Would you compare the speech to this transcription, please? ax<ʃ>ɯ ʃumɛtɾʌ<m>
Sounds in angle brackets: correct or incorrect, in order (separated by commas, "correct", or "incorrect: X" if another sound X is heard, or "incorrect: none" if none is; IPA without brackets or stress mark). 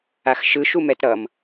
correct, correct